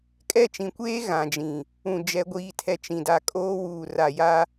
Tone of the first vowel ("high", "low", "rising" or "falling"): falling